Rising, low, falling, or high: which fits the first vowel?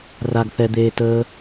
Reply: high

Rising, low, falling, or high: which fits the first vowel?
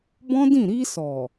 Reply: high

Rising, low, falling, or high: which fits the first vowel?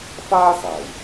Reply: high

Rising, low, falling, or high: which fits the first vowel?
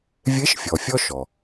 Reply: rising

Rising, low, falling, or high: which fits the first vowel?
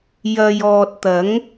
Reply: low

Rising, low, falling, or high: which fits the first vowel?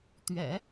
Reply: low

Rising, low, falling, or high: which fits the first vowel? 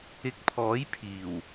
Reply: rising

